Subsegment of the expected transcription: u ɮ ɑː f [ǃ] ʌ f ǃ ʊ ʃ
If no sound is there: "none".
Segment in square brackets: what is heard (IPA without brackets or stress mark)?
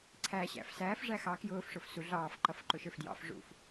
ǃ